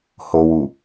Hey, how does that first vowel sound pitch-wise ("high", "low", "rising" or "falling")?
low